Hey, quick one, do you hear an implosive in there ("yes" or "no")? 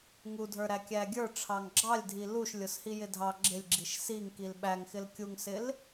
yes